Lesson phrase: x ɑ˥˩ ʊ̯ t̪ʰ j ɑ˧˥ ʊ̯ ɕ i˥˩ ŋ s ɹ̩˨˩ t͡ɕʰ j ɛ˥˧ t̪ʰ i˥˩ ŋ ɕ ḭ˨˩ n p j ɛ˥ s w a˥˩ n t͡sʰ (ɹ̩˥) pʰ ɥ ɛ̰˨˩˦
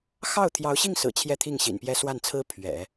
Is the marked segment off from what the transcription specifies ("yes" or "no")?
no